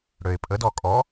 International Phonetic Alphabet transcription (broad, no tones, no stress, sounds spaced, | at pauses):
ɽ ø ɪ̯ pʼ ə d ɔ kʼ ɔ